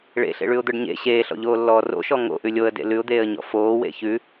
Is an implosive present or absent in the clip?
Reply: absent